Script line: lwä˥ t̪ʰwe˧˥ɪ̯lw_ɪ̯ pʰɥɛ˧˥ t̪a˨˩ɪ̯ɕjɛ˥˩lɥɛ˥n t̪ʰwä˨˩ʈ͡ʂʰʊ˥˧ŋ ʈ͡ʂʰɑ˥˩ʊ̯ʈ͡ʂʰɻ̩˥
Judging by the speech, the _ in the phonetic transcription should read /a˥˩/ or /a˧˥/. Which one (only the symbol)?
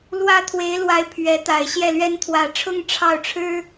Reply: a˧˥